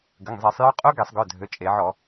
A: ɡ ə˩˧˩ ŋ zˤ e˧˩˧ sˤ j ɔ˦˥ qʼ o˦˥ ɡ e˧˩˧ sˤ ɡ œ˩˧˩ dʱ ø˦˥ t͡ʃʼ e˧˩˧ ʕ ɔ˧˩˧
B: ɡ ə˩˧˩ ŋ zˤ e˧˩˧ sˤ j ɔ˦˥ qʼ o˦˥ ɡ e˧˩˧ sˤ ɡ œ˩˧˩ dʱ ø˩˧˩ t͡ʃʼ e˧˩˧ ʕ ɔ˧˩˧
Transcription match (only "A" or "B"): B